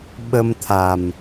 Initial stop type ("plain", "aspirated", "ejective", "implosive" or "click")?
implosive